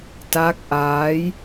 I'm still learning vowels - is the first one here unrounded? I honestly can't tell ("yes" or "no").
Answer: yes